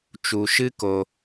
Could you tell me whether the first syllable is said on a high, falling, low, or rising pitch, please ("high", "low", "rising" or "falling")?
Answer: low